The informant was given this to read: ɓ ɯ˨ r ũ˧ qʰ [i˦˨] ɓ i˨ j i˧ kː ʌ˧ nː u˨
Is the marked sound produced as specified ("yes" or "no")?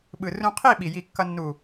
yes